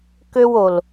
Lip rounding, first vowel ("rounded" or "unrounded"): rounded